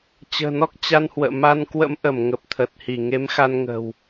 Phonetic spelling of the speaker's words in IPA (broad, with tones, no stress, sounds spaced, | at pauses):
t͡ɕ ə̤ː˨˩ n ɔ˦˥ k̚ t͡ɕ a˧ n h w ə̰ː˧˨ m a˧ n k w ə̰˧˥ m ʔ ə˧˩ m ŋ ə˨˩ p̚ t̪ʰ ə˨˩ t̚ h i˧˩ ŋ e˨˦ m x a˧ n ŋ ə̤ː˨˩ w